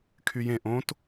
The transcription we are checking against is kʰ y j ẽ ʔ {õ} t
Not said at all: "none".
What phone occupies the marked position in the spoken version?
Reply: õ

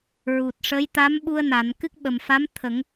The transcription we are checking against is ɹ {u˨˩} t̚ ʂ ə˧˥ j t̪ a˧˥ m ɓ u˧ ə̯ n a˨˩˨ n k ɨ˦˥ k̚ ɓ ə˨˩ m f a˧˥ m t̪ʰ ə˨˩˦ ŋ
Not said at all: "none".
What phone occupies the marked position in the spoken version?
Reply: u˨˩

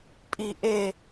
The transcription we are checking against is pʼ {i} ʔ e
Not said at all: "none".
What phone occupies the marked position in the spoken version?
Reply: i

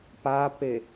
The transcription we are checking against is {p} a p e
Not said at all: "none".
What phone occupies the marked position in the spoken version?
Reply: p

